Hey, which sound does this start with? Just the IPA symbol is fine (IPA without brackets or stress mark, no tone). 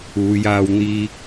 uː